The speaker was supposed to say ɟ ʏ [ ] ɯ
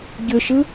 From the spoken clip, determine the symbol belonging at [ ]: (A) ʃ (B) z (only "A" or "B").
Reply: A